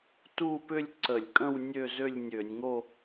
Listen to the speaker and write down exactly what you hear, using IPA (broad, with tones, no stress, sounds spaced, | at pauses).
t u˥˧ p ʏ˥˧ lʲ ǀ ə˧˩˧ lʲ kʼ ə̃˥˧ w nʲ ø˥˧ z ø˥˧ lʲ nʲ ø˧˩˧ nʲ ŋ o˥˧